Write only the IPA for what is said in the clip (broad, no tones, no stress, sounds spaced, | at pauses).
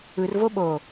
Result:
ɯ r v o ɓ o